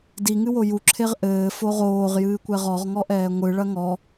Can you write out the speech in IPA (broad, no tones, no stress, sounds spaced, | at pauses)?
d i ŋ ɨ w o j u ǁʰ e ʁ ʔ ɘː f o ʁ oː ʁ j ɨː kʷ ɛ ʁ ɔ ʁ ŋ ɔ ʔ ɛː ŋʷ ɨ ɭ ɐ ŋ ɔ